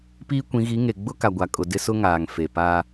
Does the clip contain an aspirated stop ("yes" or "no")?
no